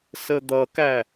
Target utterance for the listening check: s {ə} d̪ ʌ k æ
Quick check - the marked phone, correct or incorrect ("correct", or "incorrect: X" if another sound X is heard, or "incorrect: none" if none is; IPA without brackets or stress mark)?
correct